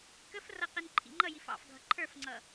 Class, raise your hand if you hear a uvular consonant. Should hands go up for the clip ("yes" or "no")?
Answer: yes